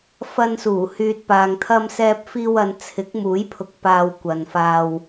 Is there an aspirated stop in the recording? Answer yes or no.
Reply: yes